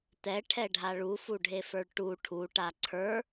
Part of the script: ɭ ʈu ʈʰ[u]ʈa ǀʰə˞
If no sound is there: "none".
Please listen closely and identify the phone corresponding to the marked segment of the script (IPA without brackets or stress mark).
u